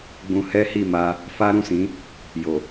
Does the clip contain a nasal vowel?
yes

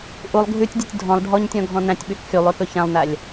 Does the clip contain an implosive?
yes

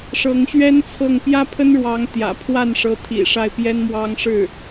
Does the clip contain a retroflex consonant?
yes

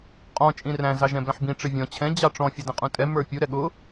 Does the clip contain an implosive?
yes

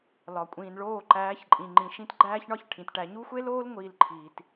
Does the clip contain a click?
yes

